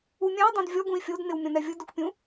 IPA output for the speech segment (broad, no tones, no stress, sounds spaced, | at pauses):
u mʲ ã i̯ dˤ õ d vʲ ɔ ɡ ũ i̯ fʲ o d n ɪ w mʲ ɔ̃ n ɛ vʲ ʊ d ʊ k pʲ ũ